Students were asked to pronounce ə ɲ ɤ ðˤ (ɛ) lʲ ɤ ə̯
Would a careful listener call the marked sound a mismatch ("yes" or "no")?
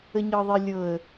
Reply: yes